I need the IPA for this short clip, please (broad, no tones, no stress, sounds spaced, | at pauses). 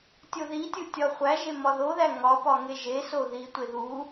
tʲ o ð i tʲ u tʲ ɒ χʷ æ ʒ e m ɒ ð o ð æ ŋ ɒ p ɒ ŋ e ʒ e s o ð i tʷ e ð u